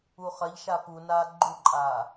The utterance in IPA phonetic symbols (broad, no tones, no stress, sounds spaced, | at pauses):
u χ ɐ ʎ ʃ a p u n aː ɡ͡ǃ u ǃʼ aː